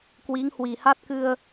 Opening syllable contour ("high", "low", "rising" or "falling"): rising